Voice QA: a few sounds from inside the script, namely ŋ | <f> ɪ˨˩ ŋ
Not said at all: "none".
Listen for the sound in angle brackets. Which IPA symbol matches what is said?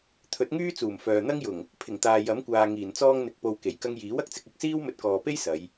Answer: pʰ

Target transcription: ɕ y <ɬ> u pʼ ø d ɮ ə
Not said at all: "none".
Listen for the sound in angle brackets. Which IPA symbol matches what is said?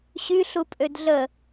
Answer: ɬ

